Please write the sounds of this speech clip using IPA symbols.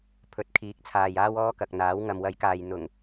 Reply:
pʰ ɵ˨˥ t̚ kʰ iː˨˥ k̚ t͡sʰ aː˨ j aː˥ w ɔː˥ k ɐ˨ k̚ n̪ aː˨˥ w ŋ ɐ˨ m w ɐ˨˥ j k aː˨ j n̪ ʊ˨˩ ŋ

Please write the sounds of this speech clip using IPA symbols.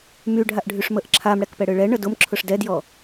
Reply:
m y ɖʱ a ʔ ɖʱ y ʂ m ə ʔ ǁʰ a m ɽ ɛ k p ɛ ɽ ɯ ɭ ɛ ɳ ə d ʊ m ǁʰ ʊ ʂ d ɛ d j ɔ

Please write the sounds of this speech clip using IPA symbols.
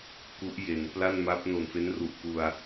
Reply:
k u˦˥ ʔ j e˩˦ n p l a˥˩ n m a˦˥ p̚ n o˨˩ n f e˦˥ n r u˨˩ ʔ k u˧ a̯

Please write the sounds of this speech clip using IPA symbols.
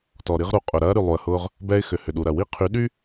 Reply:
t ɔ˨ ɾ i˦ ʁ ɾ u˨ qʼ ʊ˨ ɾ ɐː˦ ɾ y˨ lˠ u˨ ə̯ h ʊː˦ ʁ | b ɛː˦ ɪ̯ x ʏ˨ h ʏ˨ ɗ u˨ ɾ ɐ˨ w i˦ qʰ y˨˦ ɗ y˦

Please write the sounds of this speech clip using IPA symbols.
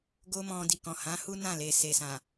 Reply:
ɡ o˦ m ɔ̃˧ d i˨ k ɔ̃˨ h ã˨˦ h u˦ n ã˦˨ l e˨ s e˨ s ã˨

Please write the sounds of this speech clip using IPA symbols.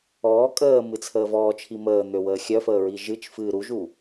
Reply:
ɔː kʼ əː m ɨ t͡sʰ əː v ɔː t͡ʃʰ i m əː n̪ ø w əː xʲ œ f əː ɹ i ʒ ɨ t͡ʃ f ɨː ɾ u ʒ u

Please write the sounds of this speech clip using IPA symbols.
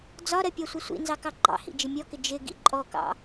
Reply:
d͡z ɒ ɾ ɜ pʲ ɑ sʷ ɪ sʷ ḭ n z ɑ k ɑ ɡ͡ǃ ɑ̰ h ḭ d͡ʒ ɪ mʲ ɔ k ɪ d͡ʒ ɪ ɡ ḭ ǃʼ ɔ k ɑ̰

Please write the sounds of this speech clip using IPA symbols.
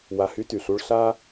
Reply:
w a˧ h y˥ t y˩ ɬ u˥ ɭ ɬ a˥

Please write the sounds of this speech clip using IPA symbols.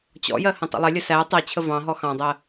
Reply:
t͡ɕ ɔ̰ j ɜ h ə̃ tˤ ə̰ lˠ ɪ lʲ ə s æ tˤ ɜ t͡ɕʰ ə v ɑ̃ ɦ ɔ x ɑ̃ dˤ ɜ

